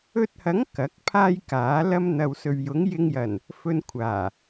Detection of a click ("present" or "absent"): absent